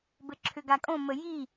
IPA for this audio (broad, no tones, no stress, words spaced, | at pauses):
bɘǁʰʏɡakʼõ məji